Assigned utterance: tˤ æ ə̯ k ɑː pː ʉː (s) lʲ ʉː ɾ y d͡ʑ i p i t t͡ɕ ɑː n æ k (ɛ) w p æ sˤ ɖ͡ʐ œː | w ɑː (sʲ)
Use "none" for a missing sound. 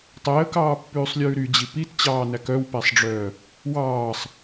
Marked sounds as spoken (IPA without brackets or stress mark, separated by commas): sˤ, œ, sˤ